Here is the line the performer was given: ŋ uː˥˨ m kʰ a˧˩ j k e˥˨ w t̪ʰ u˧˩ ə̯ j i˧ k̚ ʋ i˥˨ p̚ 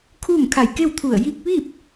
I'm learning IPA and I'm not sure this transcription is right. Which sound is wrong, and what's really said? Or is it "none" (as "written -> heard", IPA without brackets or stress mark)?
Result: ŋ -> kʰ